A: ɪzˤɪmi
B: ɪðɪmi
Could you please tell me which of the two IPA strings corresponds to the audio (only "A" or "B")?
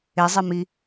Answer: A